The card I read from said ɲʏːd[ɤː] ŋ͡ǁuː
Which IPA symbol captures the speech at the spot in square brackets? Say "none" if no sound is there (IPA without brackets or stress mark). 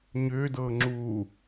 ɤː